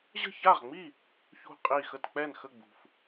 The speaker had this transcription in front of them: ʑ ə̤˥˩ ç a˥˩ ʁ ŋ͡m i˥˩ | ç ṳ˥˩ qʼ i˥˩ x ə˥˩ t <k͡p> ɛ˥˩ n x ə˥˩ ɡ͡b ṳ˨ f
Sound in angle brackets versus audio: correct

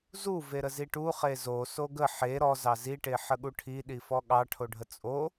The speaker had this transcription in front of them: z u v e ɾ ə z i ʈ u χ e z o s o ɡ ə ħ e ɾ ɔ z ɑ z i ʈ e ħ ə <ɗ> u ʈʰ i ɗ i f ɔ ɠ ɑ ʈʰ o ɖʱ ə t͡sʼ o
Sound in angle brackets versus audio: incorrect: ɠ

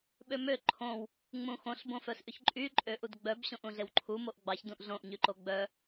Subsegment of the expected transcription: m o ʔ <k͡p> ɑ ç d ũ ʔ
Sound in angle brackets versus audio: incorrect: ɡ͡b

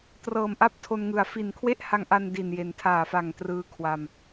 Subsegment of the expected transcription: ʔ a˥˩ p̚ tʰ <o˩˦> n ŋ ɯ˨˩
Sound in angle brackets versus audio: incorrect: o˧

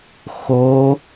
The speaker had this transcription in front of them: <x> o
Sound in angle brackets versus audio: correct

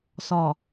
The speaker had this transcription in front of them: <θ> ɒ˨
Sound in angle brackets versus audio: incorrect: s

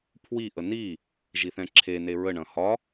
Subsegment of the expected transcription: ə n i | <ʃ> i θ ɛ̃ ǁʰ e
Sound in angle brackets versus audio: incorrect: ʒ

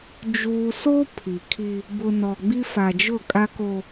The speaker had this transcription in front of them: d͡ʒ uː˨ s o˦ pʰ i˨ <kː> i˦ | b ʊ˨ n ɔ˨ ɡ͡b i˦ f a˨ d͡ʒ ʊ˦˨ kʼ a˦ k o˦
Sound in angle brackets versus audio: incorrect: kʰ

